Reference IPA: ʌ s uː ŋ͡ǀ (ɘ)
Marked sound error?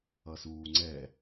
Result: yes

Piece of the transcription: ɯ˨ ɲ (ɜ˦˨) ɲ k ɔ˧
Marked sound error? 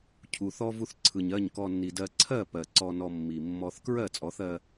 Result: no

